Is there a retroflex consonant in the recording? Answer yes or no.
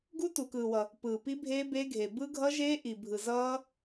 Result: no